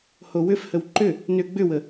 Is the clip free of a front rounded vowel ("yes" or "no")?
no